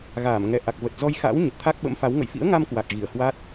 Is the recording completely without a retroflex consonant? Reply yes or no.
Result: yes